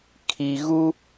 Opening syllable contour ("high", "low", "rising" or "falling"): low